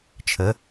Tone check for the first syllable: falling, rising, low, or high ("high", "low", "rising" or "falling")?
rising